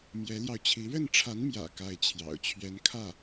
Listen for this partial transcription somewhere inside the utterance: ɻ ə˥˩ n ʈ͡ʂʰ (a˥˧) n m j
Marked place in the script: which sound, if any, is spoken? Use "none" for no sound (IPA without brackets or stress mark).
a˧˥